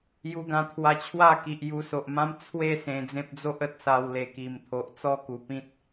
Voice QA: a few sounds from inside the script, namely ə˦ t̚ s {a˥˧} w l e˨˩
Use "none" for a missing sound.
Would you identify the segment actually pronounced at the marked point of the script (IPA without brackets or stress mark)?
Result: a˧